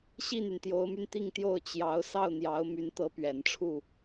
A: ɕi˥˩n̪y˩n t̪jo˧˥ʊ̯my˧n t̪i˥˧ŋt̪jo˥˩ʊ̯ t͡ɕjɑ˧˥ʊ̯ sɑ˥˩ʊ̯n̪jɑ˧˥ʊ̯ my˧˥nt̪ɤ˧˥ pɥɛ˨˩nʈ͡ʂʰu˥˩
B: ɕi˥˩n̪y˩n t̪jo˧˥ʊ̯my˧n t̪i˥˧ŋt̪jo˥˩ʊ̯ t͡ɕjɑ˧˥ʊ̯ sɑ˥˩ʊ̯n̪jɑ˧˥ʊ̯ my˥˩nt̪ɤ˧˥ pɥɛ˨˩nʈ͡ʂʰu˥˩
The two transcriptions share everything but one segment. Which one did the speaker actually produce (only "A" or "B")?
A